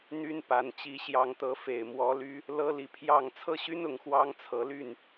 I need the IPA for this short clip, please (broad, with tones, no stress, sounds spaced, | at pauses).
n̪ y˦ n p a˨˦ n t͡ɕ i˨˦ ɕ j ɑ˨˦ ŋ t̪ ɤ˨˦ f e˨˩ ɪ̯ m w ɔ˨˦ l y˦ | l ɤ˦ l i˨ pʰ j ɑ˥˨ ŋ t͡sʰ ɤ˦ ɕ y˦ n ʊ˨˦ ŋ x w ɑ˦ ŋ t͡sʰ ɤ˨˦ l y˥˨ n